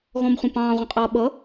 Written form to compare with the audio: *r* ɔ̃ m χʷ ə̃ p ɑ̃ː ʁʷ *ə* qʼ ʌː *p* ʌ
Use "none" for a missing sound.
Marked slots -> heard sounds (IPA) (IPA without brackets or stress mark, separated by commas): ɣ, ə̃, ɓ